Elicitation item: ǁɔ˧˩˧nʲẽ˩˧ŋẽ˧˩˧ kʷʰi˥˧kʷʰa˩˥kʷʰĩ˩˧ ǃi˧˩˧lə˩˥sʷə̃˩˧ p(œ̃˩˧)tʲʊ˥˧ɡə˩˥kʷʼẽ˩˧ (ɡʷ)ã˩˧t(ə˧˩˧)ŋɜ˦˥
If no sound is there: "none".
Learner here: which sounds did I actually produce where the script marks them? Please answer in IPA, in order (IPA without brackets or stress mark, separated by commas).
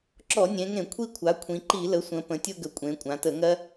ə̃˩˧, kʷʼ, ə˧˩˧